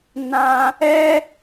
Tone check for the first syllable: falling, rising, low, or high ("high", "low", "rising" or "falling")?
high